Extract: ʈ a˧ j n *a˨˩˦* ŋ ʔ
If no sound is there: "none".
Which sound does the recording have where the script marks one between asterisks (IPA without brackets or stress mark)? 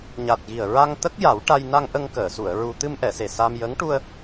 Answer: a˧